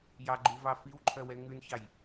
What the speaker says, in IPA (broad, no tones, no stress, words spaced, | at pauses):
jɑɡ͡ǃuvɑ fiwǃʰœwɛ ŋʉnçɑj